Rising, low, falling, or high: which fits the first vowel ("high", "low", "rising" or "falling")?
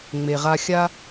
low